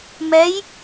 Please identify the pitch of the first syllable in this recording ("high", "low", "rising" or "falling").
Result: rising